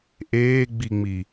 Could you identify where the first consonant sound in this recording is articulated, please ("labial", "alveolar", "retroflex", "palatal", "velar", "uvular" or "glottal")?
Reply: glottal